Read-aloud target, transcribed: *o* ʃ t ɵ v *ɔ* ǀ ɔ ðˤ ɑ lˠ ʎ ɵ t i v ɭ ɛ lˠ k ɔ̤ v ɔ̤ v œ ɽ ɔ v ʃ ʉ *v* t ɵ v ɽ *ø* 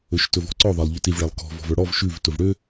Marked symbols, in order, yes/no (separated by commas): no, no, yes, yes